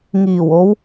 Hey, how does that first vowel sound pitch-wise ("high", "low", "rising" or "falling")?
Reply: low